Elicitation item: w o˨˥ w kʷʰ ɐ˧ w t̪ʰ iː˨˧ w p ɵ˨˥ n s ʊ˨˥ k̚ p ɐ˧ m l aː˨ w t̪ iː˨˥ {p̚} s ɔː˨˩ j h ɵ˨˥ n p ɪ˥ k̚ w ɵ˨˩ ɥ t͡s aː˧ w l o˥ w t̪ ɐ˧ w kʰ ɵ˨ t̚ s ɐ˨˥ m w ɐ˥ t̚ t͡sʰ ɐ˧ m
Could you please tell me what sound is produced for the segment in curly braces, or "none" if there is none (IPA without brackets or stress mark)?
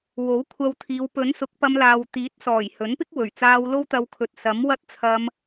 t̚